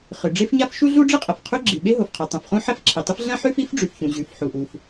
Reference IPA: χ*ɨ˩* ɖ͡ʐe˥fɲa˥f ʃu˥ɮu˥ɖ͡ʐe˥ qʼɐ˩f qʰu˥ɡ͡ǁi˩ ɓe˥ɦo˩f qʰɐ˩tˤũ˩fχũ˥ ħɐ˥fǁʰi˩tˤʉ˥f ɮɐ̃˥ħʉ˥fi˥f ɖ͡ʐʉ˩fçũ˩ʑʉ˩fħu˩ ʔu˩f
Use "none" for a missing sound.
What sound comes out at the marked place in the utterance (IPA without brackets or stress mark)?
ɨ˩